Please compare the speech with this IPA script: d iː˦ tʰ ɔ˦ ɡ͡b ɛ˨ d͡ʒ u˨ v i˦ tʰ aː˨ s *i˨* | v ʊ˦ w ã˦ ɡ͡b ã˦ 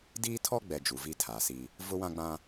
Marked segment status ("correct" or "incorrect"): incorrect